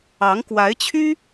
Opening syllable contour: rising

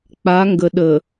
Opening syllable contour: rising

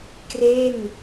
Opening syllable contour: falling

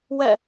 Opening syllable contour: falling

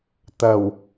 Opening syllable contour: low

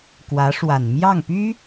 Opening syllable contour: rising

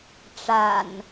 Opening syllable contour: low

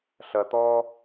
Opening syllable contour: low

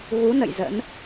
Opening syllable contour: rising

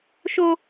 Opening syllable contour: high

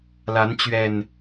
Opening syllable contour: rising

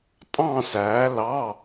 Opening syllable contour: falling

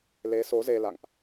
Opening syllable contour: rising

